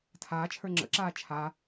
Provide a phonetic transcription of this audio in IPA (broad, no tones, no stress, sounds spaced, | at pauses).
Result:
tʰ aː t͡ʃʰ ə˞ ŋ͡ǁ ə̰ ǁ aː t͡ʃʰ a